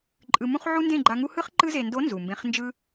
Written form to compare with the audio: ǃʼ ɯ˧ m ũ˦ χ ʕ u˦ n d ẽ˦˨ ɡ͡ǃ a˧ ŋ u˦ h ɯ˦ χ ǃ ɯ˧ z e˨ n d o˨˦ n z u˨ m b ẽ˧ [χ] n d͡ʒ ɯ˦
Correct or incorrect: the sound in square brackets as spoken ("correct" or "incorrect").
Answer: correct